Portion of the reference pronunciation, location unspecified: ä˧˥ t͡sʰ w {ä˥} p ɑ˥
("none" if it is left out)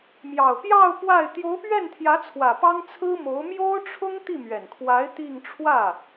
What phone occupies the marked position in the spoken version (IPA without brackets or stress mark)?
ä˨˩